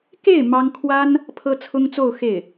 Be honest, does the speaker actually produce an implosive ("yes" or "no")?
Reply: no